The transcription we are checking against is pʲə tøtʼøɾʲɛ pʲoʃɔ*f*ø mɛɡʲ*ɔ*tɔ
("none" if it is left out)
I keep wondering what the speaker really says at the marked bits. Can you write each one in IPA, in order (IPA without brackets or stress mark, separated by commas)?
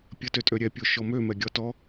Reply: m, ɔ